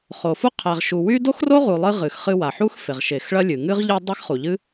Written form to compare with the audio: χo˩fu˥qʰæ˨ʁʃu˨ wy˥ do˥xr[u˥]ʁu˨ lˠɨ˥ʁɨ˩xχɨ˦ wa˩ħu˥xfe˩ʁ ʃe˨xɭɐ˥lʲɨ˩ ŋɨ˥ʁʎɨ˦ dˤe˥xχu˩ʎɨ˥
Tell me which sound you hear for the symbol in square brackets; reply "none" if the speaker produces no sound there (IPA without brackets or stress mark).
o˥